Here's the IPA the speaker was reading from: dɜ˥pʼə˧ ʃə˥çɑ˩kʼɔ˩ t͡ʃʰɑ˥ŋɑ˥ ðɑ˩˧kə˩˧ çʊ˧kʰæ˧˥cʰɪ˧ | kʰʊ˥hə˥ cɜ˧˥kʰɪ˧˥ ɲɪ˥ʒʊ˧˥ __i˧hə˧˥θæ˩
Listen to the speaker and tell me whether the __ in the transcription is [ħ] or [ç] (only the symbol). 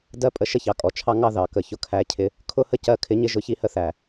ç